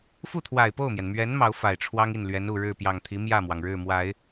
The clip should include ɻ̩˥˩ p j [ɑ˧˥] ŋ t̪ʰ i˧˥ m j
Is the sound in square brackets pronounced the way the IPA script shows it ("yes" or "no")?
no